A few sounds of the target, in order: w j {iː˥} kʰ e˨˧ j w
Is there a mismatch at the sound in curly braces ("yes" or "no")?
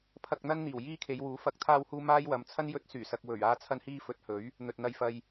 no